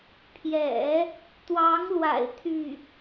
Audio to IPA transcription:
pʰ j ɛ̰˨˩˦ | t̪ w ɑ˧˥ ŋ l w a̰˨˩ ɪ̯ t̪ʰ y˥˩

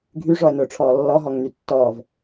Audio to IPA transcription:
ɡʱ y ʐ ɔ ə̯ n ʊː ʈ͡ʂʰ ɔː lː ɔ ɦ ɔ ŋ n y tː ɔː v

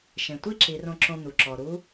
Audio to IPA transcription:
ʃ ẽ˩ tʷ i˥ ǁ i˩˧ r õ˧ ǁ õ˧ n̪ u˩ ǁ ɔ˩ ɾ u˧˥

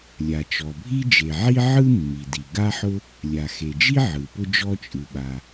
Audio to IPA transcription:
lʲ a˩ t͡ʃ ɔ˩ bʱ i˥ d͡ʒ e˩ ʕ i˥ ʕ ɯ˥ mː i˩ d i˩ ɡ a˥ ħ ʊ˥ | lʲ a˩ x e˩ d͡ʒ i˥ ʕ ɯ˩ p ʊ˥ d͡ʒ ɔ˥ t͡ʃʼ ɯ˩ ɓ a˩

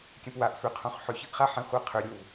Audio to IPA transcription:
kʲ ɛ̃ p w a ʔ f ʏ qʰ õ χ ħ ʏ ç ə ʔ χ a ħ ɛ̃ χʷ ɜ qʰ ʏ ɾʲ o v

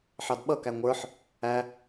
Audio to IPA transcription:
ħ ɑ d ɓ ʌ k æ ŋʷ ə˞ ħ | æ

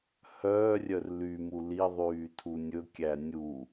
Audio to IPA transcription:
h œː rʲ œ r l y m u l i ðˤ yː tʰ u nʲ ɵ kʲ æ nʲ u

